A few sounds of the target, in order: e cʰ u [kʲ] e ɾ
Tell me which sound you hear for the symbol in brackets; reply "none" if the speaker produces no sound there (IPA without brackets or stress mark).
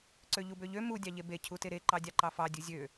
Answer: t